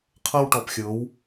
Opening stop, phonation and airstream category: aspirated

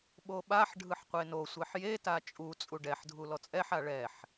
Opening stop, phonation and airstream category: implosive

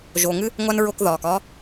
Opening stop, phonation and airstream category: plain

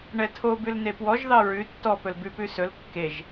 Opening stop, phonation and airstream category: aspirated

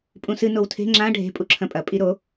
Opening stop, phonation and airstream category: ejective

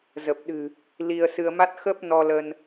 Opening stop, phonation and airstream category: plain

